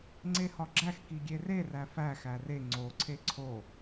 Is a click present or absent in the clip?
present